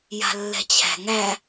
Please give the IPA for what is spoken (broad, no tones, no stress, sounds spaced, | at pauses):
j a̤ lː ɛ̤ t͡ɕʰ æ̤ ŋ æ